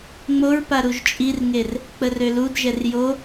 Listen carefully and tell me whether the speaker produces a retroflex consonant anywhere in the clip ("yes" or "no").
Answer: no